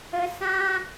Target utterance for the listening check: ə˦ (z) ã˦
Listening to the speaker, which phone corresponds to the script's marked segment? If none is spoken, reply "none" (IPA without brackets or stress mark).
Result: s